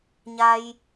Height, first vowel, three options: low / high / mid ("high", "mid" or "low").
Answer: low